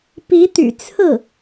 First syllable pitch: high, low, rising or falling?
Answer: rising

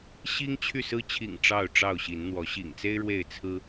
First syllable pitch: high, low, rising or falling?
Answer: high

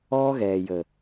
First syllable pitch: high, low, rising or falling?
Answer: high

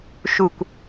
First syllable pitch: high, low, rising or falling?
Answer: falling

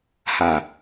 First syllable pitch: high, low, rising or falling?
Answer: low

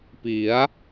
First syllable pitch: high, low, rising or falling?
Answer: rising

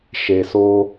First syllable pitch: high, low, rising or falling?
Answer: low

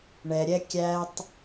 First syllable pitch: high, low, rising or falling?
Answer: low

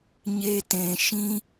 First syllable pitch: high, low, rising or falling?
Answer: high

